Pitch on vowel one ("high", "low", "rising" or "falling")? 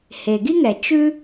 low